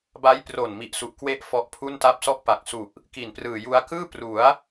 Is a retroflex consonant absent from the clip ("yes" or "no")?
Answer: yes